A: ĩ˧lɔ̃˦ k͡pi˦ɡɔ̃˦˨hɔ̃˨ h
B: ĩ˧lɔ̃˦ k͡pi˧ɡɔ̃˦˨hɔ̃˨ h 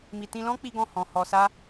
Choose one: A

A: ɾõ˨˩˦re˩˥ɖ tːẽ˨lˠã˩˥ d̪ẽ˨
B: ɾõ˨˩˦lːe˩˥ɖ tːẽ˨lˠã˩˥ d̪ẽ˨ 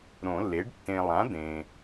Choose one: B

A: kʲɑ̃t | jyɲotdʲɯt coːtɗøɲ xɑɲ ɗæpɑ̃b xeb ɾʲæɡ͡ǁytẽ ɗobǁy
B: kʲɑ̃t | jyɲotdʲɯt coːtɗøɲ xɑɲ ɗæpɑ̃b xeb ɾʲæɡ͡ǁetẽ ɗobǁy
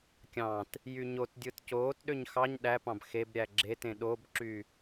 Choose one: B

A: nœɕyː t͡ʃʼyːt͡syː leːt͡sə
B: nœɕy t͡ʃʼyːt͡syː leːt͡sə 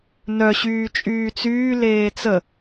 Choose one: A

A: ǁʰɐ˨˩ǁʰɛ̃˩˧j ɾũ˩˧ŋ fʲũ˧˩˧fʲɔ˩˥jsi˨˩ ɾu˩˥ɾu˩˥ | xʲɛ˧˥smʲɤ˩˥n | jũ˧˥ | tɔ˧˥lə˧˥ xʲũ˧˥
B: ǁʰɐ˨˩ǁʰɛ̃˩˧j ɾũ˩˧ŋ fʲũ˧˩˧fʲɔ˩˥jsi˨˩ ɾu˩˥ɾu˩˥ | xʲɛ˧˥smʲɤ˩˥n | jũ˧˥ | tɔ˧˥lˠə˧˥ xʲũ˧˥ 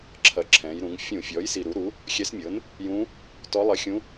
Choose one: B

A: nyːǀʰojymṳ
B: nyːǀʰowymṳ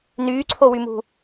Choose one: B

